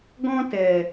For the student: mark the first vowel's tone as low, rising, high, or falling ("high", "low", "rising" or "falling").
high